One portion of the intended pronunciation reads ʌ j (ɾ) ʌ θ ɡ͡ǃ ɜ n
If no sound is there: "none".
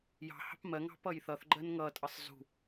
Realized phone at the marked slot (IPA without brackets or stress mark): θ